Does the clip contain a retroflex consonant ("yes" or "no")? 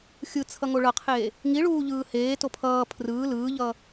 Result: yes